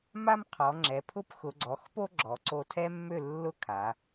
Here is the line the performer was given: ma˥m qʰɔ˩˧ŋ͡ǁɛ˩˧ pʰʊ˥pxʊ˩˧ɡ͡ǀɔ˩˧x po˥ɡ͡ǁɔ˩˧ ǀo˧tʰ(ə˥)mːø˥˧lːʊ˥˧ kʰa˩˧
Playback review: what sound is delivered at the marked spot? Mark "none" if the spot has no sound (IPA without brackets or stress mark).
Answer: ɛ˥